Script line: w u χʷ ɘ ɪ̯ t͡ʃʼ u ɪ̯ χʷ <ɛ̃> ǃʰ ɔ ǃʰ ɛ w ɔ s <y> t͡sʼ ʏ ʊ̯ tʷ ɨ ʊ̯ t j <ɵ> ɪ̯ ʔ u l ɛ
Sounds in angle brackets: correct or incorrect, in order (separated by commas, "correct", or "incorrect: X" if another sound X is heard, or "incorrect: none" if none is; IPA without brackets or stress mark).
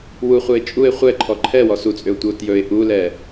incorrect: ɛ, incorrect: u, correct